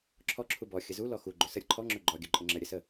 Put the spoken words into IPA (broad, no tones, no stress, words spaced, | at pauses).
ǁʰɔ ǁʰubɔ xʲəzu lɔxu ɡ͡ǃɵsə ɾʲəǃʰɔ ŋ͡ǁɵɡ͡ǃɔ ɡʲɵǃʼəŋ͡ǁə ɾʲəsə